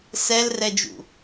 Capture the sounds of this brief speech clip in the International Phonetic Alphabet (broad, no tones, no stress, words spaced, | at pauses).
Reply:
sɛlrɛd͡ʒṵ